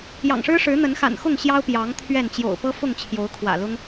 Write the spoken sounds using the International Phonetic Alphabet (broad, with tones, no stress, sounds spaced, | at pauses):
j ɑ̰˨˩ ŋ ʂ ɻ̩˦ ʂ ɻ̩˨˦ n̪ ə˨˦ n x a̰˨˩ n x ʊ˥˨ ŋ ɕ j ɑ˦ ʊ̯ p j ɑ˨˦ ŋ t̪ʰ ɥ ɛ˥˨ n t͡ɕ j o̰˨˩ ʊ̯ p ɤ˦ f ʊ˥˨ ŋ t͡ɕʰ j o˨˦ ʊ̯ kʰ w ä̰˨˩ l ʊ˦ ŋ